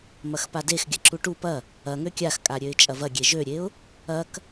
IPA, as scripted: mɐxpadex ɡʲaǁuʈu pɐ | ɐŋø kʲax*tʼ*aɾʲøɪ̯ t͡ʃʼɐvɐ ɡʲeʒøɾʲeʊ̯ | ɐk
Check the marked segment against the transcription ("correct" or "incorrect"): incorrect